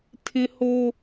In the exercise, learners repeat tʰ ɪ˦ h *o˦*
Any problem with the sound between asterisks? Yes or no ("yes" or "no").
no